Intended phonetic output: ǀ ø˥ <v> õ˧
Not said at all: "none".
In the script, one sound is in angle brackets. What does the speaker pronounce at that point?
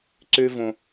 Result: v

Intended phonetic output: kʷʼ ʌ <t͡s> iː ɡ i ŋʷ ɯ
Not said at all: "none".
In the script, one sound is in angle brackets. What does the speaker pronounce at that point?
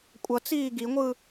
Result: t͡s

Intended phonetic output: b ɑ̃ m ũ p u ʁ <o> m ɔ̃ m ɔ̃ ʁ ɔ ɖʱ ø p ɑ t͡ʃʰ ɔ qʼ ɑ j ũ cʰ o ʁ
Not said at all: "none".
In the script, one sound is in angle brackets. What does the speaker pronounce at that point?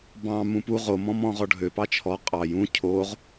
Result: o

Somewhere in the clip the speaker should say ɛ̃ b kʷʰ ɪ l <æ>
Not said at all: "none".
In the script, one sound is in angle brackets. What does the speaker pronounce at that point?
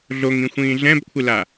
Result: a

